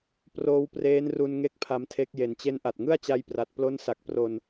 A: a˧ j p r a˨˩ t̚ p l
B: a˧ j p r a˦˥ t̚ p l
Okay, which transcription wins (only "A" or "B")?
A